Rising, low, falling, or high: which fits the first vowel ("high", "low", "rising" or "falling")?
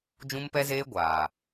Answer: high